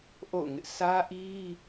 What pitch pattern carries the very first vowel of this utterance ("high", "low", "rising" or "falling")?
falling